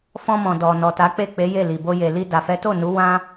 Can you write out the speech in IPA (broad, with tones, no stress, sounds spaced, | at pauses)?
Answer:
f ɔ̃˧ m ɔ̃˨ d ɔ˨ n ɔ˨ t a˨˦ k͡p e˦˨ k͡p e˨˦ j e˦˨ l i˨ b o˧ j e˨ l i˧ d a˨ f ɛ˨˦ t o˦˨ n u˨˦ w ã˦